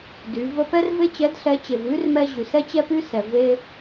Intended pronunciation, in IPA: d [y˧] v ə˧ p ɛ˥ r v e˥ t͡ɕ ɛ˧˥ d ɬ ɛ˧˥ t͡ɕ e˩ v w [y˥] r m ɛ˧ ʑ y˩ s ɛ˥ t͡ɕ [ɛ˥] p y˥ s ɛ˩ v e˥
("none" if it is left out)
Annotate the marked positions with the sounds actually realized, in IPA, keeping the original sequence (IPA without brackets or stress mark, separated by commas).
y˩˧, y˥, ɛ˥